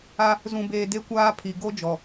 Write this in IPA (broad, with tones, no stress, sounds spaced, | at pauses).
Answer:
a˦ | z ũ˨ b eː˨ d e˦ kʷ aː˦ pʰ i˨ ɡ o˦ d͡ʒ ɔ˨